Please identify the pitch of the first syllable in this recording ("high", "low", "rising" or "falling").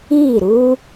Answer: falling